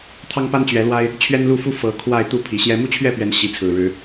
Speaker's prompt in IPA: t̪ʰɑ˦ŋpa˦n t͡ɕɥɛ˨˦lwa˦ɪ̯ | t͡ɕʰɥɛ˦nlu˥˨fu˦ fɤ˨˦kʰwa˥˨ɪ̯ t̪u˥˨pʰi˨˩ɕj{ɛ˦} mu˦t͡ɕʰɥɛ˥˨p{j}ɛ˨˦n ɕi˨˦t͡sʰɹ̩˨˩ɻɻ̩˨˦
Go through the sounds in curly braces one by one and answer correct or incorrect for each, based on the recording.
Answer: correct, incorrect

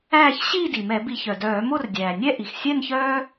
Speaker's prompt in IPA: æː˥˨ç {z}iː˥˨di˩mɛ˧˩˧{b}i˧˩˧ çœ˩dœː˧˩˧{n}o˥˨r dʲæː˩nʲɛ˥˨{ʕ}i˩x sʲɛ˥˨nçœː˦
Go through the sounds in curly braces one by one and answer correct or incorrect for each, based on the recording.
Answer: incorrect, correct, incorrect, incorrect

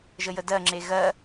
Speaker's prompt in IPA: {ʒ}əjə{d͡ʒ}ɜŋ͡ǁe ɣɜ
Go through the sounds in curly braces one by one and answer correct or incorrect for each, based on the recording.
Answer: correct, incorrect

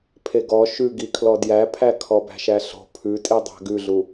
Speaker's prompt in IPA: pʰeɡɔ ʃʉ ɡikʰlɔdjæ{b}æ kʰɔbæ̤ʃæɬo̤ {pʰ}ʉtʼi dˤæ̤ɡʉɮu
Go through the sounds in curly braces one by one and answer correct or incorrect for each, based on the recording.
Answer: incorrect, correct

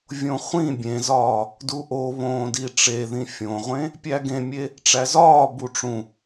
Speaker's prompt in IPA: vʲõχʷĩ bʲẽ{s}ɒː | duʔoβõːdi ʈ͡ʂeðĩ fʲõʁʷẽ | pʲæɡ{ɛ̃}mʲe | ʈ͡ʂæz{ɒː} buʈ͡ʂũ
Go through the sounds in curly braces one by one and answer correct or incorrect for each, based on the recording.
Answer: incorrect, incorrect, correct

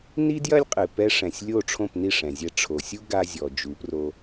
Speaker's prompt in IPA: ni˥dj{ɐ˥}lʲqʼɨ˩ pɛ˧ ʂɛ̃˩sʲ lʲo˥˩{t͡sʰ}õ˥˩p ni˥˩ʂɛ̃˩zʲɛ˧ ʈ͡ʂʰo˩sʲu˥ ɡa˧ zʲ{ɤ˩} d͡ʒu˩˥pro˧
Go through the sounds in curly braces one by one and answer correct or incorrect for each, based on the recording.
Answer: correct, incorrect, incorrect

